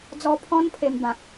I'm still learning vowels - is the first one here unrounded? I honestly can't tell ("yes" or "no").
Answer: no